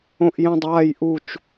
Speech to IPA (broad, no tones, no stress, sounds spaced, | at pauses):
õ ʔ j ɛ̃ dˤ aː j ʔ u t͡ʃ